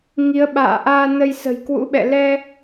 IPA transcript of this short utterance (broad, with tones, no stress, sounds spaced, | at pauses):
ŋ i˨˦ ə̯ ɓ a̰ː˧˨ ʔ aː˧ n ə˧ j s ə̤˨˩ j k w ṵ˧˥ ɓ ɛ̰˧˨ l ɛ˧